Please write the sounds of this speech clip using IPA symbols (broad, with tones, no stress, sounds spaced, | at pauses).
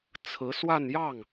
t͡sʰ ɹ̩˧˥ s w a˥˧ n j ɑ˥˩ ŋ